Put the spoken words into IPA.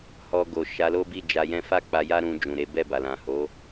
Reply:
h ɔ˧ ɡ o˨ ʃ a˨˦ l o˦ b i˦˨ d͡ʒ a˧ j ɛ̃˦ f a˦˨ k͡p a˧ j a˦ ɾ ũ˧ d͡ʒ ũ˨ ɾ e˨˦ b ɛ˦˨ b a˨ l ã˨ h o˨˦

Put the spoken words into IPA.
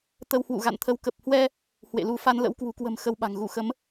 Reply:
t̪ ə˧ w h w ṵ˧˨ ɣ a̰˧˨ n t̪ʰ ə˨˦ w k ə˨˩ p̚ h w ɛ˧ | h w ḛ˧˨ l u˧ f a˧ n l ə̰˧˥ w k w ṳ˨˩ k w ə̤˨˩ m x ə˧ w ɓ a̤˨˩ ŋ ɣ u˧˩ x ə˨˦ m

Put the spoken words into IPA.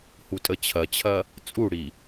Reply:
h u tʼ ə t͡ɕʰ ɐ t͡ɕʰ ɐ | t͡sʼ u ɽ i

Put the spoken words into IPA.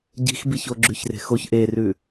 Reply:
ɟ i̤ x b i ç o ɡ͡ǁ ʉ ç r e̤ x o ç ʔ e r ʉ

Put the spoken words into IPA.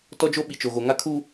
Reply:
t ɔ˦ d͡ʒ o˦ ɓ i˨ t͡ʃ o˨ ɣ o˨ ŋ a˦ kʰ uː˦

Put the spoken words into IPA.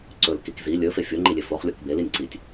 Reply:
ǀ ɵ l k i k z i lʲ ɵ f e fʲ o ŋ͡ǃ i lʲ e f o χ lʲ o k b e l i nʲ ǀ i tʲ

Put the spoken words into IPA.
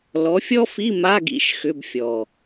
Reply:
l ɔ˨˦ fʲ ɔ˥ f i˧˥˧ m a˧˥˧ ɡ ḭ˥ ʃ x ʏ˧˥˧ b fʲ ɔ˨˩

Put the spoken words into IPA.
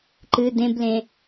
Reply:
ǃ ɨ d ẽ b l ẽ

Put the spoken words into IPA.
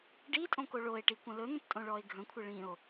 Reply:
ɖ i tʼ õ k o ɭ o e̯ ʈ i kʷ ə̃ l ɵ n̪ ə̃ p tʼ õ ɭ ɔ e̯ ɡʱ ə̃ kʷʰ ə ɭ ĩ o̯

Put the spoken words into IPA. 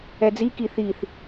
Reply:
ɛ d͡z i k i θ i θ

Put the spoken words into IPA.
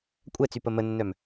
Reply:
kʷʼ ɛ t͡s y p ə m ə nː œ m

